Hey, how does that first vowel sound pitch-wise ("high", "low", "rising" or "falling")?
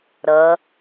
rising